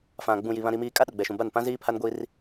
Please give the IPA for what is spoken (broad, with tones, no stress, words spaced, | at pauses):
fã˨ɡ͡bũ˨ji˨ βã˨ɾi˨miː˨ kʼa˦ɗʊ˨ɡ͡bɛ˨ʃũ˨ ba˦˨n pã˦ziː˦pʰa˦nɡʷiː˦r